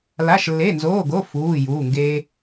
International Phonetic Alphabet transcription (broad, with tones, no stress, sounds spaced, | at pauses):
l a˧˥˧ ʃ lː e˧˥˧ n z oː˧˥˧ ɡ o˧˥˧ f uː˧˥˧ j uː˧˥˧ ŋ ɡ eː˥